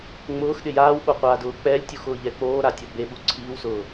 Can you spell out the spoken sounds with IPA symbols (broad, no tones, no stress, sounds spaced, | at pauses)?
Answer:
ŋ͡m ʊː x ɗ ɪ j aː w ɓ o qʷ aː d ʊː k͡p ɛ lʲ tʲ u x ʊː ʎ ɛ k͡p oː ɾ a tʲ ɔ b e ɓ u ǀʰ iː w s ʊː